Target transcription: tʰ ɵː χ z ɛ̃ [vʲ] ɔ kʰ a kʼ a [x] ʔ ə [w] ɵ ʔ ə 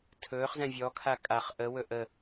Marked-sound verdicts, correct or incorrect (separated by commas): correct, incorrect, correct